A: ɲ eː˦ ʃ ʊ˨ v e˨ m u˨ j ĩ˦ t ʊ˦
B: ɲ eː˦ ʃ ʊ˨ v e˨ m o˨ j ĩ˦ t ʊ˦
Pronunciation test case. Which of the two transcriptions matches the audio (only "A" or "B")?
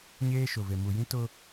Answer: A